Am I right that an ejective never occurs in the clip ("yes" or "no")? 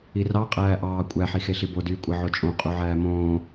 no